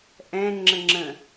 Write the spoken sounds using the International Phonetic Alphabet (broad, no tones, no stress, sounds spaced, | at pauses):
ʔ ɛ̃ ŋ͡ǁ ə ŋ͡ǁ ə̃